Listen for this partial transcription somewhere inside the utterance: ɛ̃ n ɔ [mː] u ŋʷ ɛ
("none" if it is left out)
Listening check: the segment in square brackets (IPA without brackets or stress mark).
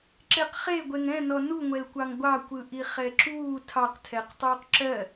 n